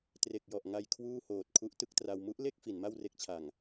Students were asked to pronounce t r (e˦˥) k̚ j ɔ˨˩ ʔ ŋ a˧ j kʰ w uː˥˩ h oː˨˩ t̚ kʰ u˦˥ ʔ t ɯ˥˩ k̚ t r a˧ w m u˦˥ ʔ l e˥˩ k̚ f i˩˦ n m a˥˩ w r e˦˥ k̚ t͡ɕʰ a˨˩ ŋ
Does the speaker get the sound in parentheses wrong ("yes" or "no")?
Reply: yes